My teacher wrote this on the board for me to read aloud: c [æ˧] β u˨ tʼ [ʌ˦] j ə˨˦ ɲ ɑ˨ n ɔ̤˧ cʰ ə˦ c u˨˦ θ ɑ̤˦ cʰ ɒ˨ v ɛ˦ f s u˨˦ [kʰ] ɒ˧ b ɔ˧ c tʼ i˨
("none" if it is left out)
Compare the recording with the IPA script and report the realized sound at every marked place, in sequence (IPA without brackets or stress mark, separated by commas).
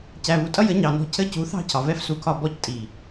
æ˨, ʌ˦, kʰ